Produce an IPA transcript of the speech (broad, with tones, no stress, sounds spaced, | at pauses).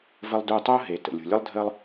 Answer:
v ə˧ lˠ d u˧ tˤ o˥ ɦ e˩ t ə̰˩ lʲ ṳ˩ lʲ ɯ˥ lˠ dʱ əː˥ lˠ